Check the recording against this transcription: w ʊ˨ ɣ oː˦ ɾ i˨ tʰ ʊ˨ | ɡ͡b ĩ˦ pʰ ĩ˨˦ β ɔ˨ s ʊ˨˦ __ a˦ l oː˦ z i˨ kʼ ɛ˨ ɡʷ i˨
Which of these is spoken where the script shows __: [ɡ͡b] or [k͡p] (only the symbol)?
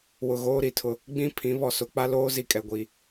k͡p